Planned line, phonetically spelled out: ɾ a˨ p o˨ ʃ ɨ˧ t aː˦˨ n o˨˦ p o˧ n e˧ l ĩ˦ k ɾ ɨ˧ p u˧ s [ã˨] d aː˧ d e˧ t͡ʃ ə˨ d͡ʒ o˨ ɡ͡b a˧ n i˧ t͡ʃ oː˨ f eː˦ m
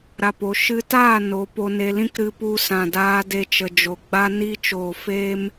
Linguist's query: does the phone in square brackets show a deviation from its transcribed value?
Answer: no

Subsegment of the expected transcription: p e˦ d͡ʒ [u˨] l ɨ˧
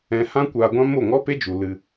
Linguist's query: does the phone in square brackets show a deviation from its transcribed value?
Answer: no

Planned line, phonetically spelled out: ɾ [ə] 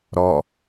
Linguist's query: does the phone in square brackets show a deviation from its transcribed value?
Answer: yes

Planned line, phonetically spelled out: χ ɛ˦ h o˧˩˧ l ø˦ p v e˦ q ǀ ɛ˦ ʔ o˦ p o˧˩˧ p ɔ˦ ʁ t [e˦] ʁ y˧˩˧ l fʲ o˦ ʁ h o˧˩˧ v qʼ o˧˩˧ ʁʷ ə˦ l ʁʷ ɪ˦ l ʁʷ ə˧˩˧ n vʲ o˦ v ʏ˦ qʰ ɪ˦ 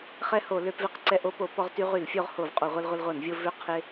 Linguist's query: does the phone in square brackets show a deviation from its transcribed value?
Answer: yes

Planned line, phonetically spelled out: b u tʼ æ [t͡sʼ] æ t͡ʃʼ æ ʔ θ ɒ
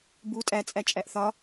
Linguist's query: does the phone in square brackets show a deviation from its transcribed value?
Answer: no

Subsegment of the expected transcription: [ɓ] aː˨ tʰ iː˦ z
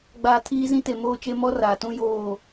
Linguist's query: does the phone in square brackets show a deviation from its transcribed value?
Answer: yes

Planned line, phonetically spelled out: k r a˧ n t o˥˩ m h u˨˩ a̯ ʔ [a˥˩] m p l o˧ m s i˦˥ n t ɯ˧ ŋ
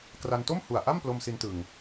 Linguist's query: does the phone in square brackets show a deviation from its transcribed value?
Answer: no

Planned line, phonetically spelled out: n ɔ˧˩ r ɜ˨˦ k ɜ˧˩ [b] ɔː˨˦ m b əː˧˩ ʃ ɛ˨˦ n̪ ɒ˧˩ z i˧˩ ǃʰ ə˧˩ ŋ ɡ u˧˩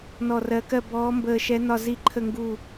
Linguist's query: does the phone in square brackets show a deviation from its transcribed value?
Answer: no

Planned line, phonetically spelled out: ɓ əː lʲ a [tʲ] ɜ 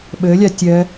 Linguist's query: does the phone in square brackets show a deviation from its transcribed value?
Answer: no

